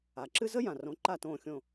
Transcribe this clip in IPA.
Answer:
a˩ǁɨ˥ zə˥jã˩rõ˩˥ ǃa˥˩tõː˥˩xʲõ˥˩

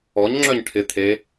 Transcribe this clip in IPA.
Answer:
ɔɲŋ͡ǁœɲ ʈʰɪ t̪ʰe

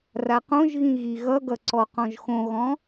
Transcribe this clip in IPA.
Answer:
raqõʒɣĩ ɣiɣʌɡʌ ǀɔqɔ̃ʒxõɣɔ̃

